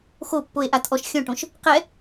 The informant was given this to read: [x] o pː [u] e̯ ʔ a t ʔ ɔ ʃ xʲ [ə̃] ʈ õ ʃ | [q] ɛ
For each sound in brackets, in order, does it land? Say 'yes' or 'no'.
yes, no, no, yes

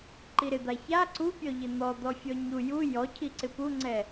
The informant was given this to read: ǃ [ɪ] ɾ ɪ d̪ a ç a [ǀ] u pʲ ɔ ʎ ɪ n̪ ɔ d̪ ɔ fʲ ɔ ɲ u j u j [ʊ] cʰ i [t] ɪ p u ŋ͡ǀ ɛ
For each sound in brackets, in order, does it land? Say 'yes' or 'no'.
no, yes, no, no

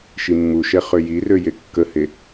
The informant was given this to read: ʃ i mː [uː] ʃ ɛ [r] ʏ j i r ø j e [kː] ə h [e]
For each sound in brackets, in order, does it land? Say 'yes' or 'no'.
no, no, yes, yes

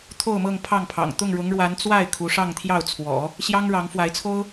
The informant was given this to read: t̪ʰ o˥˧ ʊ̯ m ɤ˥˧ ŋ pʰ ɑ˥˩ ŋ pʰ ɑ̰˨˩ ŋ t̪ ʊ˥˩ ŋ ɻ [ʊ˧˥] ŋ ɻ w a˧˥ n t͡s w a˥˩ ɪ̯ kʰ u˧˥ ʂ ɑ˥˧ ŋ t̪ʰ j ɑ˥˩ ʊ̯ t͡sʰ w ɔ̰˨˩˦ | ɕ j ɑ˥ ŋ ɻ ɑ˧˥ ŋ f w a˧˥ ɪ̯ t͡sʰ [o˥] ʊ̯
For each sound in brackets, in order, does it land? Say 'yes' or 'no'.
yes, yes

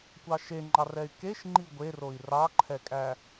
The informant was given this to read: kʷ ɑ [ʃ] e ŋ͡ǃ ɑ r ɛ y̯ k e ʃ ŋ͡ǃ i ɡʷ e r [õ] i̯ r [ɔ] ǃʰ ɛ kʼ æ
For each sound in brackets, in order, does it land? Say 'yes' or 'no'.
yes, no, no

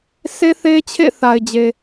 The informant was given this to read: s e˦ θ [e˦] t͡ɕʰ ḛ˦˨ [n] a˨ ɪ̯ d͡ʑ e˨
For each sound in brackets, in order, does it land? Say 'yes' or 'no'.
yes, no

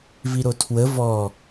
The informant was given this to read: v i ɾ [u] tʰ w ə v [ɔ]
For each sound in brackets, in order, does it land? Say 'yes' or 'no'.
no, yes

